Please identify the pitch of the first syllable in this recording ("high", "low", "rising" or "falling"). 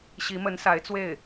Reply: rising